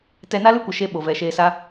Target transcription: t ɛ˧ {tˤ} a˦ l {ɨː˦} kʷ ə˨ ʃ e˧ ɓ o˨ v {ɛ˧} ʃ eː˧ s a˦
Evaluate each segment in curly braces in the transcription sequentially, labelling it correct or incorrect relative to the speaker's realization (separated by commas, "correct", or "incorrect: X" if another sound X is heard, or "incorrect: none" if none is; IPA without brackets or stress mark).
incorrect: n, incorrect: ɨ˦, incorrect: ɛ˨